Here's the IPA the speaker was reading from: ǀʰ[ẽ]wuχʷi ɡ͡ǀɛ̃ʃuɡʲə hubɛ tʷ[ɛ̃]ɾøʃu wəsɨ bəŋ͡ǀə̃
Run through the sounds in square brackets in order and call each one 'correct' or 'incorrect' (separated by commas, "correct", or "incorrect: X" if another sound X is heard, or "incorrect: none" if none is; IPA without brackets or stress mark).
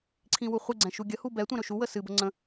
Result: incorrect: ĩ, correct